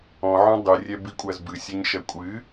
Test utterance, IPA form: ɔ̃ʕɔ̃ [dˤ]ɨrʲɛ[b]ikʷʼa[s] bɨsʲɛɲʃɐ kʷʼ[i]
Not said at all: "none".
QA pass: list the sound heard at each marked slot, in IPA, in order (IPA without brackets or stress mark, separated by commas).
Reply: dˤ, b, z, ɨ